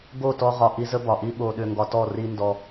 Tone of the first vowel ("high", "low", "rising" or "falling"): falling